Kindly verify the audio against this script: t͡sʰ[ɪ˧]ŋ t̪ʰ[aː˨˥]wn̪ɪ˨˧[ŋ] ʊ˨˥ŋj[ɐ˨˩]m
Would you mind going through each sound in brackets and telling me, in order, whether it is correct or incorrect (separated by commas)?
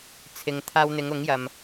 incorrect, incorrect, correct, incorrect